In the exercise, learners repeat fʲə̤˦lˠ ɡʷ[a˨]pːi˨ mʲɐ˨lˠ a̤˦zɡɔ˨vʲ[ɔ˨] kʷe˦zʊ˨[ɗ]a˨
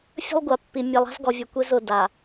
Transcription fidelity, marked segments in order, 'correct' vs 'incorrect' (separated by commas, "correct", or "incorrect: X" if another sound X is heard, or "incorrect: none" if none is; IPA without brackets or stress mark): correct, incorrect: ʊ˨, incorrect: d